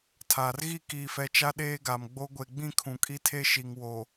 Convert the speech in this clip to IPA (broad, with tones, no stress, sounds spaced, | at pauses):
tʰ aː˨ r ɣ i˦˨ k iː˨ f ɛ˨ t͡ʃ a˦ ɗ eː˦ ɡ a˨ m ɡ͡b o˦ ɡʷ e˨ ɡ͡b ĩ˦˨ kʰ ũ˨ kʼ i˦ tʰ e˦ ʃ i˨ ŋ w o˨